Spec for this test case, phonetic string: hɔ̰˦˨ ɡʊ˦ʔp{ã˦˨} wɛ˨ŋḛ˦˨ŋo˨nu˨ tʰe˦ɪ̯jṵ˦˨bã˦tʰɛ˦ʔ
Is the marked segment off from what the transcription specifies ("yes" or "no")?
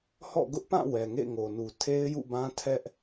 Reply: no